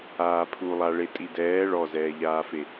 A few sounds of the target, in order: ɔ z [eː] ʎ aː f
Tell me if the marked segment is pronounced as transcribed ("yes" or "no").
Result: no